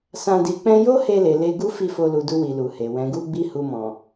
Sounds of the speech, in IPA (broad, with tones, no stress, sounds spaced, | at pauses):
s ã˧ d i˨ k͡p ɛ̃˧ j o˦ h e˧ l e˨ l e˧ ɡ u˦ f i˦˨ f o˧ l u˨ d u˧ w i˨ l u˨ h e˨ w ɛ̃˨ ɡ u˧ ɡ͡b i˧ h u˧ m ɔ̃˨